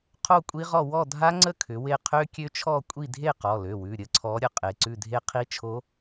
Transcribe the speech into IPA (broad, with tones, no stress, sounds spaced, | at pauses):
qʰ o˥˨ kʷʼ i˦˥ ʁ ɔ˥˨ w ɔ˥˨ dʱ a˦˥ ŋ͡ǀ ə˥˨ kʰ ʏ˨˥ w e˥˨ qʰ ø˦˥ kʲ ø˦˥ t͡ʃʰ ɔ˥˨ kʷʼ i˥˨ dʱ e˥˨ q ɔ˩˧˩ l ø˩˧˩ w ʉ˩˧˩ ɾʲ ə˦˥ ǀʰ ɔ˨˥ ɾʲ ə˨˥ qʼ e˩˧˩ ǀ ʉ˥˨ dʱ e˦˥ qʰ i˦˥ t͡ʃʰ o˦˥